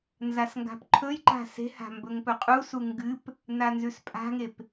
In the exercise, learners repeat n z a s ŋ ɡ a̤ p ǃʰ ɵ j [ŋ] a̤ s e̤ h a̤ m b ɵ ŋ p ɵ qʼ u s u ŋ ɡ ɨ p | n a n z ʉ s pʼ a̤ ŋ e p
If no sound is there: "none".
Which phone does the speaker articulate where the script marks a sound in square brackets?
ǃ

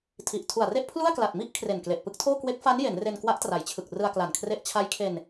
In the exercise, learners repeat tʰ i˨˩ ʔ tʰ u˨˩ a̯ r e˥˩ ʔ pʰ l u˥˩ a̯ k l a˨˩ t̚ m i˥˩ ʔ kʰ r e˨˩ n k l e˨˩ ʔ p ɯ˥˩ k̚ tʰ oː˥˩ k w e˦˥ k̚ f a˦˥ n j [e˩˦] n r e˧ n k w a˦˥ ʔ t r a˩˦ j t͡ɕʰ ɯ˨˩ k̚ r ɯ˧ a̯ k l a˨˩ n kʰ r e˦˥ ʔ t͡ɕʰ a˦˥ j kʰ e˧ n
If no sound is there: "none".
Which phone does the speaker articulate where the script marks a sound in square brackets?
e˩˦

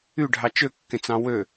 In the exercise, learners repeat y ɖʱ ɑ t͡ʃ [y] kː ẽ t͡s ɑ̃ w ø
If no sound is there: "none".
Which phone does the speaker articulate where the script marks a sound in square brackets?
ø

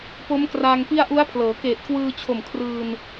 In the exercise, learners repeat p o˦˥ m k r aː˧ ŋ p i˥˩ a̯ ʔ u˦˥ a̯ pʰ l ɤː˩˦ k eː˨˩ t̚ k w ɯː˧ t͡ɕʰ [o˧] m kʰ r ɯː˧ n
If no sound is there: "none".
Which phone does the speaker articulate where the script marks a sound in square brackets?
o˨˩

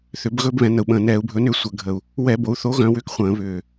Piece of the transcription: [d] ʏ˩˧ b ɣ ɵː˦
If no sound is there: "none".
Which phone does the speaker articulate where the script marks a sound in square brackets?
θ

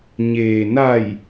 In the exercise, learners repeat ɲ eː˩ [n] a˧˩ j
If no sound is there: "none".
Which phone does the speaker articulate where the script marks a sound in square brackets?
n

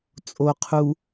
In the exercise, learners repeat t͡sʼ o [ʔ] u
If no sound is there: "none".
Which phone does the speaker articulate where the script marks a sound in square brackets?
qʰ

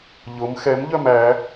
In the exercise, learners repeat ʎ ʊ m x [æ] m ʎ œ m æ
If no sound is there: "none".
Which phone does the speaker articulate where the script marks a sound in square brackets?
ɛ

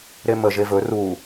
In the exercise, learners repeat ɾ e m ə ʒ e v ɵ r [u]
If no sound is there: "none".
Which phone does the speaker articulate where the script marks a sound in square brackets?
u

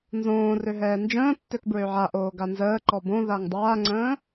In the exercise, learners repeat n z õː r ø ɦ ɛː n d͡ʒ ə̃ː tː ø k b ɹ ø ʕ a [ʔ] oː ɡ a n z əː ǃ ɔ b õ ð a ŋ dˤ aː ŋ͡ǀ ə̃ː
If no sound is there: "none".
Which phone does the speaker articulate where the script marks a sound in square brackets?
ʔ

